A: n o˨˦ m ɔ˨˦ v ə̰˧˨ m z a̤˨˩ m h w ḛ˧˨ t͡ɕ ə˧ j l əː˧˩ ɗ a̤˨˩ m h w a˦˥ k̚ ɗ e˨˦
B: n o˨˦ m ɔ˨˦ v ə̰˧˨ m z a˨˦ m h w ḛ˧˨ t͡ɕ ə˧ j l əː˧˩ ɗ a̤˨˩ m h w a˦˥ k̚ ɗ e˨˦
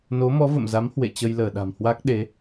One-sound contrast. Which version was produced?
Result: B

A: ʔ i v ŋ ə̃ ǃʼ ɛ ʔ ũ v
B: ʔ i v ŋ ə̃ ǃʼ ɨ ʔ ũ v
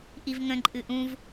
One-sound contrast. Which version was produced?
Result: B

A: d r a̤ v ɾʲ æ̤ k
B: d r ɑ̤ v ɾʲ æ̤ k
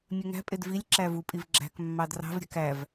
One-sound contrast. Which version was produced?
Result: B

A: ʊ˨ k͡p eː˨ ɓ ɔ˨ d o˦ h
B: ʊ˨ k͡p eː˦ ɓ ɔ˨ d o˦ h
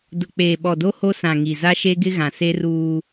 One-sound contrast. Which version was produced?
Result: A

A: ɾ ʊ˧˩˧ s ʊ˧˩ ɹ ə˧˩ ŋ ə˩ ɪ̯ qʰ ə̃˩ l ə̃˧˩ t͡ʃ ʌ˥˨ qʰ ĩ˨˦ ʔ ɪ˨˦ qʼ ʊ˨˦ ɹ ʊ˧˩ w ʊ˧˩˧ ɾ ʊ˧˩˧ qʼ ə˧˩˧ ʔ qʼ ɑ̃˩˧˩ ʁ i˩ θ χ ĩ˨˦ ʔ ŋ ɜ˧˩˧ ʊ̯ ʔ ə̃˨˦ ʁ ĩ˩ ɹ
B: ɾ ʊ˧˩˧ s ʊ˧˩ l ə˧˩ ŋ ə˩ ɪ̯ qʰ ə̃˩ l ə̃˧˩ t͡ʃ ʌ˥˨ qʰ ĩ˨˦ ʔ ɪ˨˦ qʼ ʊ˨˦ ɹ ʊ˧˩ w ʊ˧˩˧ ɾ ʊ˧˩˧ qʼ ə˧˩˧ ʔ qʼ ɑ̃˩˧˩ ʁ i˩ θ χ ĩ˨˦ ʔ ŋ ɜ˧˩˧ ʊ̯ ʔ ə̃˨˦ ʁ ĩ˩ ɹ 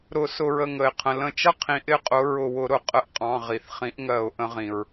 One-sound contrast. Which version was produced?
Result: A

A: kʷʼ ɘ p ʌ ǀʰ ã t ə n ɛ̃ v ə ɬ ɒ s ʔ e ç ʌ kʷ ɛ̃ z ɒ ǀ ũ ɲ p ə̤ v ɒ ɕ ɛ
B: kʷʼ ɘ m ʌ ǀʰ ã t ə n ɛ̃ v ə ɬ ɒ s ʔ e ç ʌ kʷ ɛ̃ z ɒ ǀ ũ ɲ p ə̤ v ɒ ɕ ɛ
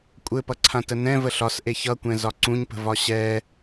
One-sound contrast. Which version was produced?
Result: A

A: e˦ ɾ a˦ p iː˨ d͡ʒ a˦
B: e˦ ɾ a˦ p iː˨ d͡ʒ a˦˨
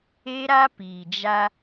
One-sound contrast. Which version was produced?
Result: A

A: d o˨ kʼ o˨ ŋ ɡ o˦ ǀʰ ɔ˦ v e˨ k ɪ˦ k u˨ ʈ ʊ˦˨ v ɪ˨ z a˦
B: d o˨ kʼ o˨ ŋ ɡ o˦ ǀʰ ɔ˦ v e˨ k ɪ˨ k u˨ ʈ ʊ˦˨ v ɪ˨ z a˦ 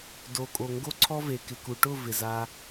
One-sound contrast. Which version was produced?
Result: B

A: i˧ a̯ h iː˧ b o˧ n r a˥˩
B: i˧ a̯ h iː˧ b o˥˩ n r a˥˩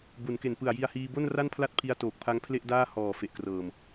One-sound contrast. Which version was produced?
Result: B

